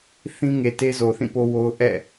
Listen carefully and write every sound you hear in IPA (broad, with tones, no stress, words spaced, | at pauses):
θĩ˦ŋe˨te˦ zo˨θĩ˦˨po˦wo˦ʊ̯ ʔɛ̰˦˨